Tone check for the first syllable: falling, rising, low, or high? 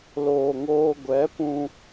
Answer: low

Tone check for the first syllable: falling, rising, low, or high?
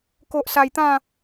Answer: low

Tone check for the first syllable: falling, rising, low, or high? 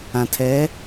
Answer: low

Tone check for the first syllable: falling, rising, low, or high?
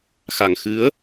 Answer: low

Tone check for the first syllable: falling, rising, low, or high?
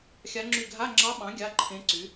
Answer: rising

